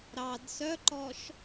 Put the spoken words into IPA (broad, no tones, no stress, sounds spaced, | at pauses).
ɾ ɑ d s œ ǃ ɔ ʃ